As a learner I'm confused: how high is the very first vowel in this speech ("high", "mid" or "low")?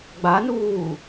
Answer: low